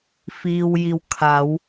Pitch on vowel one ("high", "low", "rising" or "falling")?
low